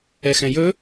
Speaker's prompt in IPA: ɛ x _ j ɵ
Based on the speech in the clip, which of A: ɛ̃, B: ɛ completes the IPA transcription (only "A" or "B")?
A